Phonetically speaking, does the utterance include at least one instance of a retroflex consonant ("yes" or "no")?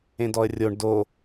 yes